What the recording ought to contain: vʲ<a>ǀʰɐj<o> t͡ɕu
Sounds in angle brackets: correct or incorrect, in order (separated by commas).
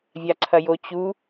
correct, correct